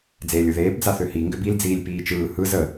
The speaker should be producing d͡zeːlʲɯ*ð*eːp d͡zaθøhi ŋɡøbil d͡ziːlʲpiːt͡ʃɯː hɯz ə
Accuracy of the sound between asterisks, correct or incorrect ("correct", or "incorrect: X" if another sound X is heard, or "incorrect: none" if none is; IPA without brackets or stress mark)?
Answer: correct